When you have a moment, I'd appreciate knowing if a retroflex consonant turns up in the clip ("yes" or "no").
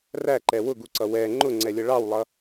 yes